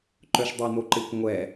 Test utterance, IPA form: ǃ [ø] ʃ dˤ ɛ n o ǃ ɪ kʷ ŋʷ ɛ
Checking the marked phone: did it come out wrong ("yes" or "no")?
yes